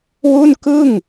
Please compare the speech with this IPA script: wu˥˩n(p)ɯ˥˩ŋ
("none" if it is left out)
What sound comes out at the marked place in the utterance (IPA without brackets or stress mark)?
k